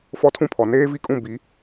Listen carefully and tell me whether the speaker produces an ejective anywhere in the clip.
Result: yes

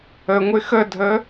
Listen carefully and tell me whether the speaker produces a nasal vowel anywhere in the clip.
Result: no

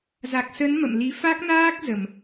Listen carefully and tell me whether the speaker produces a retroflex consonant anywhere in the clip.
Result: no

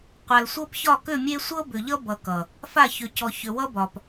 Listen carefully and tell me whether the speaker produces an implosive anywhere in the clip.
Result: no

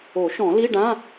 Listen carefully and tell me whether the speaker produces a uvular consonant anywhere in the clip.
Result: no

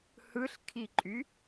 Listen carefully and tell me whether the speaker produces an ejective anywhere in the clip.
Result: yes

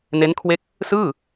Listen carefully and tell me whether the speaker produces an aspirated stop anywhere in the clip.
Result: yes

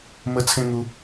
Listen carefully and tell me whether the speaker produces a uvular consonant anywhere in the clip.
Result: no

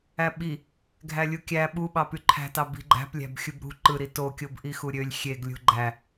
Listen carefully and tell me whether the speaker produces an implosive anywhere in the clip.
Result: yes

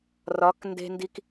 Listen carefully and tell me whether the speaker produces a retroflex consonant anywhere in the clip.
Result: no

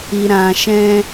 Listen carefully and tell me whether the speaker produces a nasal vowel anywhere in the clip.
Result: yes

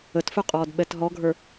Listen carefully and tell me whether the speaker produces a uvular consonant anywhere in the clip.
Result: yes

